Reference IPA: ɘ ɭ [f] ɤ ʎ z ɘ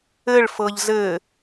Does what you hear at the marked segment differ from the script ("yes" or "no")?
no